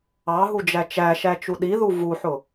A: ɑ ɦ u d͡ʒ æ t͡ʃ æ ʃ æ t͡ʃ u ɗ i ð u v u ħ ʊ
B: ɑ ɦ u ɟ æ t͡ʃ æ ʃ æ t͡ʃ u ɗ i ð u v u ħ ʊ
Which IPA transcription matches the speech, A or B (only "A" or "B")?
A